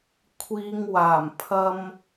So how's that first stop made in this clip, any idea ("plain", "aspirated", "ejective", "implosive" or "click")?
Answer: aspirated